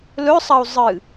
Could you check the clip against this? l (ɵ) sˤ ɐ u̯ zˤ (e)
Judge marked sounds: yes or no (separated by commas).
yes, no